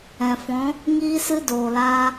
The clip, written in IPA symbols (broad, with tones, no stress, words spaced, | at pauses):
ɛ̃˨fɔ̃˨˦ | ŋiː˦sɨ˦ doː˨laː˧